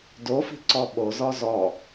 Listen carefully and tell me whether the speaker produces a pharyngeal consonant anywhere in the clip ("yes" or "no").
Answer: no